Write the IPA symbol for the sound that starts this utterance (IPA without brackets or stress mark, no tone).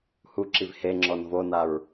h